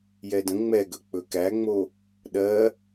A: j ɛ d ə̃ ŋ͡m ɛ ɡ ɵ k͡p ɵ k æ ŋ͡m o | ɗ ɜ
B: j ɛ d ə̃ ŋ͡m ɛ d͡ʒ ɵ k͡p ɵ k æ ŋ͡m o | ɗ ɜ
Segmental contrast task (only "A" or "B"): A